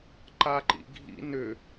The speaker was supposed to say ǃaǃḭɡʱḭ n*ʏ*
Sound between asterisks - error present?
no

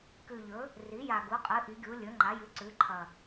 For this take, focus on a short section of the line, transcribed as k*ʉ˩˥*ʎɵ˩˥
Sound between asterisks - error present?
yes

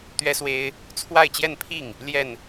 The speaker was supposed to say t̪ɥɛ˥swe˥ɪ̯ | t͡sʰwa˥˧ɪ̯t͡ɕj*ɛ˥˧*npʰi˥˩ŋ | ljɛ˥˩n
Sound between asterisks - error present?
no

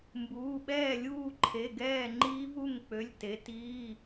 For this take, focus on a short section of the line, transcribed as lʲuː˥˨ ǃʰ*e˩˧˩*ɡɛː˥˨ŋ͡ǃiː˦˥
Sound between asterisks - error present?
no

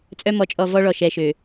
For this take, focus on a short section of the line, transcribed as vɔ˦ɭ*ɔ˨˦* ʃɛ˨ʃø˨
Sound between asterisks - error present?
yes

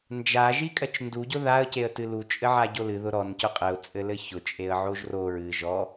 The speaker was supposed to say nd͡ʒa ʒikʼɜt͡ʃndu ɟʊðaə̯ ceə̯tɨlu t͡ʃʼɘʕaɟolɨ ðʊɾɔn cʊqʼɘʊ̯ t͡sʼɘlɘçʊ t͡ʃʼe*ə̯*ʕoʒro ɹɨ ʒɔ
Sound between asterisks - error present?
no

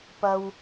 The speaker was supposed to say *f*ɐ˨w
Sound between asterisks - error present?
yes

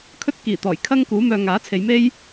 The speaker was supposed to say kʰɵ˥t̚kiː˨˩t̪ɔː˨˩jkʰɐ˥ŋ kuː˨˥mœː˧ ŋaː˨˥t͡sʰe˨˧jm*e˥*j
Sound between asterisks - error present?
no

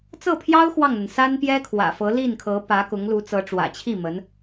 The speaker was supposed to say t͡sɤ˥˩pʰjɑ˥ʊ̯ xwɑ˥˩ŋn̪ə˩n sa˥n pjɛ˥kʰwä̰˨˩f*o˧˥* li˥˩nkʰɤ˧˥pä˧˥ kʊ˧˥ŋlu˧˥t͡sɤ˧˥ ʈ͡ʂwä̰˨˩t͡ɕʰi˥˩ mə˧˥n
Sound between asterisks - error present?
yes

